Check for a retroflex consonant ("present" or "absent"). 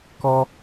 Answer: absent